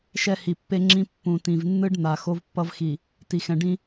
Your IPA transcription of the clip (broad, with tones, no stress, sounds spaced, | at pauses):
ʃ ɛ˦ h i˨ pː e˦ ŋ͡ǁ ĩ˦ pː ũ˨ t ĩ˨ v nː ɯ˦ ɖ n̪ a˨ x o˦ v pː ʌ˦ v x i˨ | t i˨ x ɛ̃˨ ɖ ĩ˦